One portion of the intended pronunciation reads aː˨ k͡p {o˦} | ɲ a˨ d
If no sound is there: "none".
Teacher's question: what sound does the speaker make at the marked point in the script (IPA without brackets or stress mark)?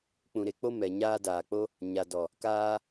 o˦